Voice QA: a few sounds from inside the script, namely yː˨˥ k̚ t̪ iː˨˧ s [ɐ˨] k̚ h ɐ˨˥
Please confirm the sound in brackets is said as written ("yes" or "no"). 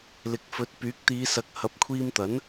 no